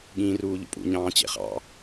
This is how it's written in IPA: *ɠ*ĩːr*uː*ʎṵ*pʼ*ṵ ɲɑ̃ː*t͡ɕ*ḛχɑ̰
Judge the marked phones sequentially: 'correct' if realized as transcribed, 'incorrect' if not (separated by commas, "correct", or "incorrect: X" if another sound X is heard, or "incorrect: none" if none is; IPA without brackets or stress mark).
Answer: correct, correct, correct, correct